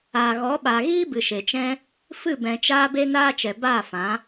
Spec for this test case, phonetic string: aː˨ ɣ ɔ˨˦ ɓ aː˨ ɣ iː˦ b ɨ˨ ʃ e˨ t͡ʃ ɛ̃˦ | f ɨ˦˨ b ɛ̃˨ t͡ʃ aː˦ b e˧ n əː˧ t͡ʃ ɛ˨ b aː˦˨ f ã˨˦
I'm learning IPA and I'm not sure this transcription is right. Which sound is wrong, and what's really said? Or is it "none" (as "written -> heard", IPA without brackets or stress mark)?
əː˧ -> aː˧